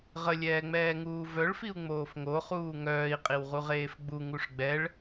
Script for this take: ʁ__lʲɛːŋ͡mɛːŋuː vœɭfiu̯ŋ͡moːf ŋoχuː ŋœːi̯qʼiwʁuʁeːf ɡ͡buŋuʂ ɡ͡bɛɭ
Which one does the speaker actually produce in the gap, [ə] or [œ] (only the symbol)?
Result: ə